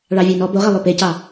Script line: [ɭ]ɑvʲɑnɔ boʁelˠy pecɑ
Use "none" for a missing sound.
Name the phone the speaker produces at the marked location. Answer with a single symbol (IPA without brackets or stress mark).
ɭ